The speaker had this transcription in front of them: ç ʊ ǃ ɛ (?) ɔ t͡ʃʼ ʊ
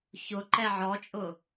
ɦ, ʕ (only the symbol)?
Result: ʕ